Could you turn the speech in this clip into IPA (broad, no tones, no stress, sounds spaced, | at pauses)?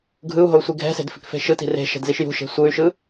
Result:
ɡʱ ɯ u̯ ɦ o u̯ sʷ i ɡʱ ɛ̤ s e̤ d f i̤ k f e̤ ʃ ɯ t i̤ r e̤ ʃ ɛ̤ d z i ʃ j ṳ ʃ e̤ sʷ ɯ y̯ ʃ ɯ